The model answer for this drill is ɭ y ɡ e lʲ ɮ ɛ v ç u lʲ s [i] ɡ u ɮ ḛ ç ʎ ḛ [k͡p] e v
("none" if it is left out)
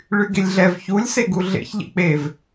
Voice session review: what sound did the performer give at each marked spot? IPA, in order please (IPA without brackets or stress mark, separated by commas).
e, k͡p